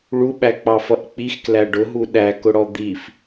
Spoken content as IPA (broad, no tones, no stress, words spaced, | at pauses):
ɭuɓæk͡pɑfʌʔ k͡pixklæ ɖʊɦu ɗækʊɽɔ d̪if